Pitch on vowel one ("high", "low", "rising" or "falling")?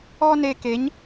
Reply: high